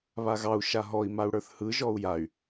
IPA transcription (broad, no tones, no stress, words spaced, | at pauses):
βaɣɑu̯ ʃaɦɔi̯ mau̯ɽə˞θhɯ ʒɔu̯jay̯